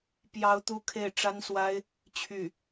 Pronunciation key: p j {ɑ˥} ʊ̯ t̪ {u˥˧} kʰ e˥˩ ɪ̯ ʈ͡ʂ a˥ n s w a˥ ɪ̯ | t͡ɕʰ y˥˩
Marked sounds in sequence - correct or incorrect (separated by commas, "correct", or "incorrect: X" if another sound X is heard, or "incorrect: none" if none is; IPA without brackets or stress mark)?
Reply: correct, correct